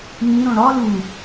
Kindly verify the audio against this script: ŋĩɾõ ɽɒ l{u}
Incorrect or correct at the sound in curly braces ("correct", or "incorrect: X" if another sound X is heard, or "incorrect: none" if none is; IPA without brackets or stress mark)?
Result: correct